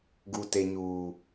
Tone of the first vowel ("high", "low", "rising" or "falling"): low